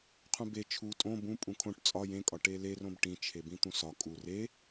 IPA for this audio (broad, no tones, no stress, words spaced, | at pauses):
qʰũbe t͡ʃʰu tʼõ bũ pʼũkʰõʈ t͡sʼɒ jẽkʼɒ ʈelerõb ʈĩt͡ʃʰebĩ t̪ũsɒ kʼu re